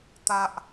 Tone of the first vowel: high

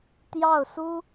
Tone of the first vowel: falling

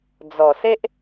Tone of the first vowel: low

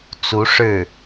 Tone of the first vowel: rising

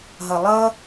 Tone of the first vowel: low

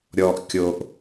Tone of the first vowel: low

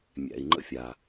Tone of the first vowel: low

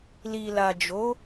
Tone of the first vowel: low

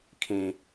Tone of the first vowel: high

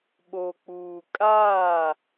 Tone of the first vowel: low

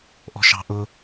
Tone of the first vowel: high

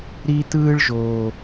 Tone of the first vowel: high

